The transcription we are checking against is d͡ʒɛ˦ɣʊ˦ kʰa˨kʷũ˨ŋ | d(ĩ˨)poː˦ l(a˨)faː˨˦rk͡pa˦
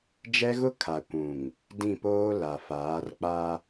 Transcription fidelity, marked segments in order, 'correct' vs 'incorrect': incorrect, correct

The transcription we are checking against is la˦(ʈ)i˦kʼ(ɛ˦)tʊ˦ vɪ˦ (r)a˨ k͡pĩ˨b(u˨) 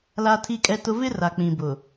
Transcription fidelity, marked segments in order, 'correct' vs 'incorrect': incorrect, correct, correct, incorrect

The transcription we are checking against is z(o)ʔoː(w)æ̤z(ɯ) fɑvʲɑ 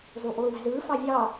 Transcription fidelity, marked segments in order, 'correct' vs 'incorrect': correct, correct, incorrect

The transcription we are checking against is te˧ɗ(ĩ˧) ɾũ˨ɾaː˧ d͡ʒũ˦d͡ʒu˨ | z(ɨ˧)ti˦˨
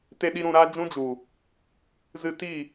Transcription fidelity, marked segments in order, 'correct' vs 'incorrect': incorrect, correct

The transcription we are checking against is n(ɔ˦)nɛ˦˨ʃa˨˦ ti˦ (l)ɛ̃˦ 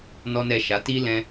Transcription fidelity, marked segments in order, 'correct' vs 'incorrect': correct, correct

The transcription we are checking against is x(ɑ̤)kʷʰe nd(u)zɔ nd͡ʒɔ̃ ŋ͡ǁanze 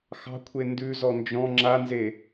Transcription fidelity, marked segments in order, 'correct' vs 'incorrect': correct, incorrect

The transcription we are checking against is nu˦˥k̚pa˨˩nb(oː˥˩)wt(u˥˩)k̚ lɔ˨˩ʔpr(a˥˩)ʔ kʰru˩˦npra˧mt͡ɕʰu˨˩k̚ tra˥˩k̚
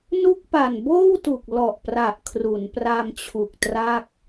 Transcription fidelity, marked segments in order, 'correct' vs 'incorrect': correct, incorrect, incorrect

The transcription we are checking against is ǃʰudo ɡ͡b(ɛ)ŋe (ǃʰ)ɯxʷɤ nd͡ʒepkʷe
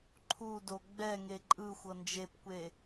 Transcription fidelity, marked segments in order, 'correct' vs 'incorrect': correct, incorrect

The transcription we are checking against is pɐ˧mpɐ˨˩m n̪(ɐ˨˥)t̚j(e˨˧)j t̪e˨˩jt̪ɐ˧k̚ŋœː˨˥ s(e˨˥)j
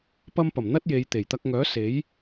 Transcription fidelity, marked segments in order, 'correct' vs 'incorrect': incorrect, correct, correct

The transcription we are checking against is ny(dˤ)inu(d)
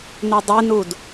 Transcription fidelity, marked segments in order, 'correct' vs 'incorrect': correct, correct

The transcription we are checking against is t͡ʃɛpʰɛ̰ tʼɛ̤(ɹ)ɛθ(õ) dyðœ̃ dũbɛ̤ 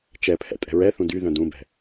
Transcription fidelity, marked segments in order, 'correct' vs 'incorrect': correct, incorrect

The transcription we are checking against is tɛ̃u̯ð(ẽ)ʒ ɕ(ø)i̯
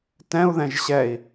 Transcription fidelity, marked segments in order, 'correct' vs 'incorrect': incorrect, incorrect

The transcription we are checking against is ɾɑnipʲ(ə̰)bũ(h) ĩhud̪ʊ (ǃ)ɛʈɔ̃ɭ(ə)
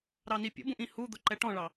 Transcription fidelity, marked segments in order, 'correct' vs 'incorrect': correct, incorrect, correct, incorrect

